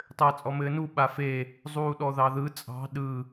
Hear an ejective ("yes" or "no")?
yes